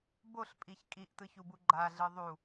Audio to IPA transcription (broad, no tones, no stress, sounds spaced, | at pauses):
b o ɬ pʼ i ç kʼ i ʔ t ɯ ç u b u ɡ͡ǃ a ɮ ɯ ðˤ u